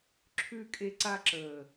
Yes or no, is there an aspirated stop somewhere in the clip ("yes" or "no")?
yes